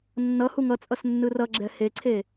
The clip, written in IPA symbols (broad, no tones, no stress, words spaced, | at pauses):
nːʌ huŋʌt͡sʼʌs nːɯrʌɡ͡ǁɛ heǀʰe